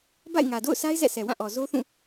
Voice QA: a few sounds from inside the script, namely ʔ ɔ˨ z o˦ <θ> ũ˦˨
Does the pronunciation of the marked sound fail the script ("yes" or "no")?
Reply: no